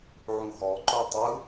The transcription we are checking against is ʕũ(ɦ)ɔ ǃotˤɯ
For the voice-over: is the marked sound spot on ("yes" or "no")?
yes